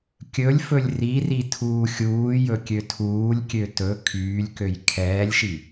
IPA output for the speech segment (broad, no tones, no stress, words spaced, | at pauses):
kʲɵlʲfɵlʲ riri tʰuːxʲuːjɵ kʲøtʰuːlʲkʲø tɵ kʰyːlʲkøj kʰɛːlʲʃi